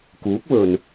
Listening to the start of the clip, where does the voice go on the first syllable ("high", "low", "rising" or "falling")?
rising